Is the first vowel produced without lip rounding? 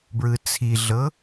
yes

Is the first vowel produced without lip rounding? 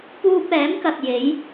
no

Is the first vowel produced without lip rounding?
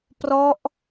no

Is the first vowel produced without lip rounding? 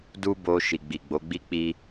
no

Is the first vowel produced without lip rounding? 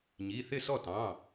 yes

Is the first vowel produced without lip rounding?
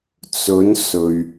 no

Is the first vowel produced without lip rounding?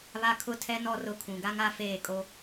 yes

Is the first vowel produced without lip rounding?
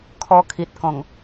no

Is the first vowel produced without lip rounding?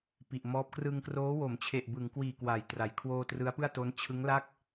yes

